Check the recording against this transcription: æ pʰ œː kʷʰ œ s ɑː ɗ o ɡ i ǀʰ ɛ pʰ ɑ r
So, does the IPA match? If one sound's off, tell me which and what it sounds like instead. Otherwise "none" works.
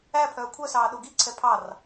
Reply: none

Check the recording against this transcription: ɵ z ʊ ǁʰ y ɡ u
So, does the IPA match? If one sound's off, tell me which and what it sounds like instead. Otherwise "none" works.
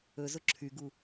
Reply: none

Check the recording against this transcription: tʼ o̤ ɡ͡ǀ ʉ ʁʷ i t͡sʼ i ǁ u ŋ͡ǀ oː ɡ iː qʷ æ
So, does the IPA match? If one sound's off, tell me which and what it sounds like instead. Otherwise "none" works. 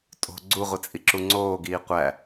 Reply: ʉ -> u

